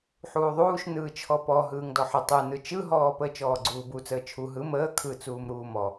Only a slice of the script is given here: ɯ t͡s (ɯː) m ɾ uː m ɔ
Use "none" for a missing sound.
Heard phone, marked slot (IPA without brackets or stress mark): uː